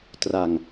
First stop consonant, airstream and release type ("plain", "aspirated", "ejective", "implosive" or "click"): plain